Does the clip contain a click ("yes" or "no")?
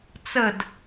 no